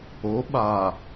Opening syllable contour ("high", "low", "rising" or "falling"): rising